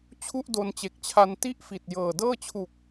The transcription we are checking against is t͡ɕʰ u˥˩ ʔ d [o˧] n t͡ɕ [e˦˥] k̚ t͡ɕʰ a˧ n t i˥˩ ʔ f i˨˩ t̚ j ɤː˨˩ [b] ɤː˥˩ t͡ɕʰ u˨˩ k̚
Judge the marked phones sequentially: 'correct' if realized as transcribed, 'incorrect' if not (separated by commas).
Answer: correct, incorrect, incorrect